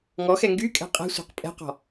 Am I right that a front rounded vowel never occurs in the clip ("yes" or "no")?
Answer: no